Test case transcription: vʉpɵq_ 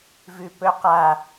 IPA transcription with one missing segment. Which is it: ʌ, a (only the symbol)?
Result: a